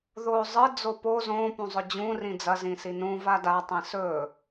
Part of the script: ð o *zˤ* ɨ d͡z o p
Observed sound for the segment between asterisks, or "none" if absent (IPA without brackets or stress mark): zˤ